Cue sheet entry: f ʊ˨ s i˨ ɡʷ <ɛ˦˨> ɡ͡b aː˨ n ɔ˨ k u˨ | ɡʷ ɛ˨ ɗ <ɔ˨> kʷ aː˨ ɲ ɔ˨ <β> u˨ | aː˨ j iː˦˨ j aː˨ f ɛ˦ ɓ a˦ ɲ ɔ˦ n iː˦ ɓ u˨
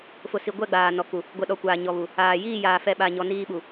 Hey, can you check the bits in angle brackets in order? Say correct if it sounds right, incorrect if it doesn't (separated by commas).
correct, correct, correct